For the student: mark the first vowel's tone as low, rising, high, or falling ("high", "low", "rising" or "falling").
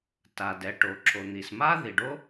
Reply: low